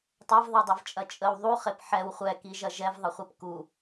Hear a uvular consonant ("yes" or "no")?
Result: yes